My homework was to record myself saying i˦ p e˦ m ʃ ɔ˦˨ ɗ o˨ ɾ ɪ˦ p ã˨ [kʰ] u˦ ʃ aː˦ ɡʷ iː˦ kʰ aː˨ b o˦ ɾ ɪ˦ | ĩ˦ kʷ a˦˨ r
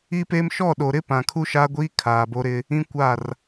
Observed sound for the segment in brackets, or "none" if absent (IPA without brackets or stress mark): kʰ